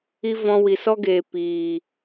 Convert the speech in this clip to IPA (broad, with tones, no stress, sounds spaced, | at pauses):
i˦ v ɔ̃˧ w i˨ s ɔ˦ ɡ eː˨ p iː˨